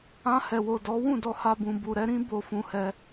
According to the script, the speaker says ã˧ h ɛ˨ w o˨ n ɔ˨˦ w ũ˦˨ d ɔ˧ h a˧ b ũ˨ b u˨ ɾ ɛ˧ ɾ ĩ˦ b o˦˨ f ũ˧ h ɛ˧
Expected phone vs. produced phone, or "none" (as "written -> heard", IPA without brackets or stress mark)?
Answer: n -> d